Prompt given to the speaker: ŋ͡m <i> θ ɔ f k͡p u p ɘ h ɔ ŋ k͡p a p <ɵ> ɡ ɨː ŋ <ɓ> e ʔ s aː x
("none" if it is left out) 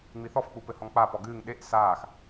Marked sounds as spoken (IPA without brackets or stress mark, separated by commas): i, ɔ, ɗ